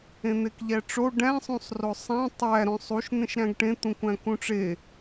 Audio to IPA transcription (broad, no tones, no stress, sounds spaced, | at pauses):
ẽ n̪ e k ʎ æ ʈ͡ʂ o ɖ æ̃ sˤ ũ sˤ r o sˤ æ̃ tˤ æ ɾ õ sˤ u ʃ n̪ ẽ ʃ ɾ æ̃ ɡ ʈ ẽ t̪ ũ kʷ æ̃ k ũ ʈ͡ʂ e